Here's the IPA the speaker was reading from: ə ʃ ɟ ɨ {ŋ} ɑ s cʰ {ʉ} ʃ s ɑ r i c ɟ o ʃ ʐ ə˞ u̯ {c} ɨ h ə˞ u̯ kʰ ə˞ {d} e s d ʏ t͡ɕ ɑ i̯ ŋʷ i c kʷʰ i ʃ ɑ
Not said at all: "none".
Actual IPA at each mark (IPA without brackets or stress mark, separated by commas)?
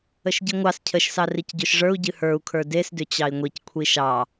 ŋʷ, ə, ɟ, d